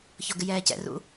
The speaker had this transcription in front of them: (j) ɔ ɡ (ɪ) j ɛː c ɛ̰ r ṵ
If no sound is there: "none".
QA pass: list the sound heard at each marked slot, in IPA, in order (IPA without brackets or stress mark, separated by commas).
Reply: ç, ɪ